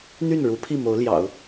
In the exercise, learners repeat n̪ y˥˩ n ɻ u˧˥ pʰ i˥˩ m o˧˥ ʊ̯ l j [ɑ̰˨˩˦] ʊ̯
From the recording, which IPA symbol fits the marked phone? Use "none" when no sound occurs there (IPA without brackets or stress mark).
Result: ɑ̰˨˩˦